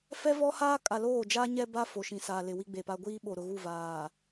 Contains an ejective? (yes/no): yes